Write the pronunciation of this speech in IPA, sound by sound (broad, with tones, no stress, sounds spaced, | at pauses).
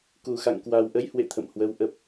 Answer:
k u˨˩ x a̰˧˨ ŋ k w a˨˩ w ʔ ə˨˦ j h w ḛ˧˨ t̪ʰ ə̰˧˨ m h w ə˨˦ w ʔ ə˨˩ p̚